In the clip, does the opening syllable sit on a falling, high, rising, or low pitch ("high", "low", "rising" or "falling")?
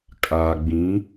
low